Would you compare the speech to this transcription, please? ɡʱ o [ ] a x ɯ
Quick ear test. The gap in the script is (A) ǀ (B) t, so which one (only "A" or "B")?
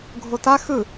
B